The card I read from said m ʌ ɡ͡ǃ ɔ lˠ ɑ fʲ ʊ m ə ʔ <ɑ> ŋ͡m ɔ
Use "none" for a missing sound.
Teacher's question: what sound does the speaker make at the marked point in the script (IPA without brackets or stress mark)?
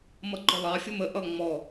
ʌ